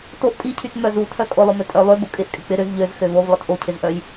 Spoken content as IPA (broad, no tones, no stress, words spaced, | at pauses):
toʔ tʼicʰyt mœzutʰœ kʼʊlˠʊmʏ tʼœlˠʏ bʊkʼɪʔ kʼɪk͡pɪ ɾʏz ʎøz xøvov lˠitʔocʰɪzʔœj